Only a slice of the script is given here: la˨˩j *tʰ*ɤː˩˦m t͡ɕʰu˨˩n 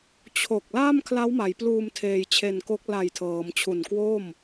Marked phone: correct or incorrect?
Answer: correct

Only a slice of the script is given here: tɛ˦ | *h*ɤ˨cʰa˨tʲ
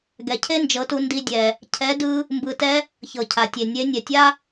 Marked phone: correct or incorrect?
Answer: incorrect: ç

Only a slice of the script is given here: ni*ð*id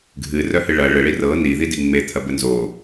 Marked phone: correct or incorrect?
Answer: correct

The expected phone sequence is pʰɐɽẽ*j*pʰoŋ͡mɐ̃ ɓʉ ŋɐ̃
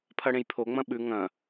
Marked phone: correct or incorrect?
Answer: correct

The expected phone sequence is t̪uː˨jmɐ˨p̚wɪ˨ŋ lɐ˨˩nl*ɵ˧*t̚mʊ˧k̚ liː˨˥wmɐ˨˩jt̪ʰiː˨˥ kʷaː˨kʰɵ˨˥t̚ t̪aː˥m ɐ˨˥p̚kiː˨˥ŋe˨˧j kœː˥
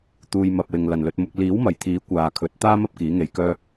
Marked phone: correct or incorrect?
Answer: correct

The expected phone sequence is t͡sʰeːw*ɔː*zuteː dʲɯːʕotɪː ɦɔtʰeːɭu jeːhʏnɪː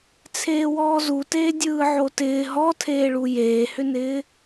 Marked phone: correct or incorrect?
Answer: correct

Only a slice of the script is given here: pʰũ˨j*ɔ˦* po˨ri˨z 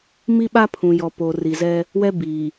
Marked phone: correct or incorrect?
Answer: incorrect: ɔ˨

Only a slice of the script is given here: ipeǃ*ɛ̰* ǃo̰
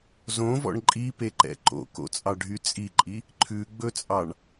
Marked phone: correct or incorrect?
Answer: correct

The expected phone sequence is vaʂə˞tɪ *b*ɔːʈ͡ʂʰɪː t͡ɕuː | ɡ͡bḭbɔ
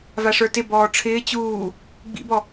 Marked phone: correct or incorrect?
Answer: correct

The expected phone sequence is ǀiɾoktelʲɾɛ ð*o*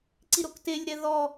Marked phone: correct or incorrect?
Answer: incorrect: ɔ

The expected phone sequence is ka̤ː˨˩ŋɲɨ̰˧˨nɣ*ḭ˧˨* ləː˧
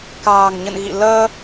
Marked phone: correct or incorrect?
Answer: correct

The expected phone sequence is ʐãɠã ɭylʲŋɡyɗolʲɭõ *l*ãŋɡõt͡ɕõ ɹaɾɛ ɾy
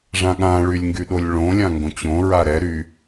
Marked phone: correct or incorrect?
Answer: incorrect: lʲ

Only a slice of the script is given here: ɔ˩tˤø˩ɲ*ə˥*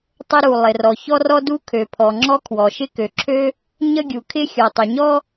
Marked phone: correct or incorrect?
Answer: incorrect: ɔ˥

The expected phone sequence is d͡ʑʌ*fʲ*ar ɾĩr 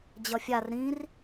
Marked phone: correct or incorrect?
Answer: correct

